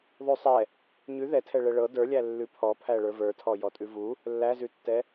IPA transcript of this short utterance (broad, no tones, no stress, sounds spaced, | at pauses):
ðˤ ʉ sˤ ɛ | ɲ ʉ ð ɛ tʰ ɛ ɭ ɛ ɭ ɤ d ə˞ lʲ æ lː ʉ pʰ ɔ pʰ æ ɭ ə˞ v ə˞ tʰ ɔ j ɔ tʼ ʉ v u | lː æ z ʉ tː ɛ